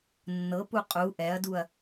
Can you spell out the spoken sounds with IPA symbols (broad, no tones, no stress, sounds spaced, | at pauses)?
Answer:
nː ɤ p u qʼ u ʔ ɛ ɐ̯ d u ɐ̯